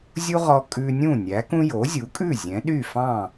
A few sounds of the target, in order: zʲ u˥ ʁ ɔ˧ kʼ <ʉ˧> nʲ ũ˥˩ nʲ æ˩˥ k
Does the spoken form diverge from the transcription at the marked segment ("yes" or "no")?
no